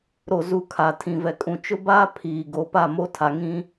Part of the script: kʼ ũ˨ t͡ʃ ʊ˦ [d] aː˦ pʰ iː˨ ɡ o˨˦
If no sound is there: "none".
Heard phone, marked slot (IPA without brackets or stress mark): b